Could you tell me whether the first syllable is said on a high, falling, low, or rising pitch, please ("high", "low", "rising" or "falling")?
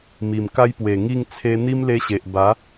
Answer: low